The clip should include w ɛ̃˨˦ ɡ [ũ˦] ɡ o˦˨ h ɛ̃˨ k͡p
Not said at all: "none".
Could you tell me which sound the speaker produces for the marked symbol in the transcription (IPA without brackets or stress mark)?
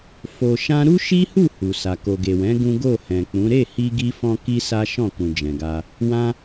ũ˦